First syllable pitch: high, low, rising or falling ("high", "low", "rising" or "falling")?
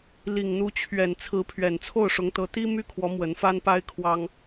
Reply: low